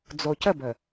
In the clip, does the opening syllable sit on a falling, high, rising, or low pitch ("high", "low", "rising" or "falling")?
low